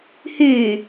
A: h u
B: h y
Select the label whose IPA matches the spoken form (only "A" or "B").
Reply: B